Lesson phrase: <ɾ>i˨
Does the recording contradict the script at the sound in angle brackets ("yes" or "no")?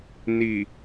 yes